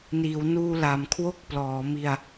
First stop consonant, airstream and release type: aspirated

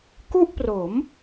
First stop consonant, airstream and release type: plain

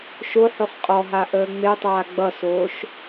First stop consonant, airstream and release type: ejective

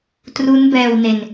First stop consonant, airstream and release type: plain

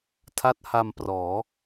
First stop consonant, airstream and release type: aspirated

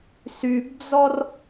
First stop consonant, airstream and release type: plain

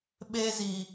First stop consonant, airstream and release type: implosive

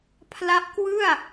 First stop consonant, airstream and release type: aspirated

